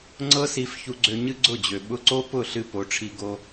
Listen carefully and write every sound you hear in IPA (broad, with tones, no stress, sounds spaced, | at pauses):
ŋ͡ǀ ɤ˦ s i˧ f ç u˧ ɡ͡ǀ ø˧ ɲ ɨ˦ ɡ͡ǀ ʊ˦˨ d͡ʑ ø˨ ɓ ʊ˧ ǀ o˦ p ʊ˦˨ ɬ ɨ˧ p o˨˦ ʈ͡ʂʰ i˧ ɡ o˧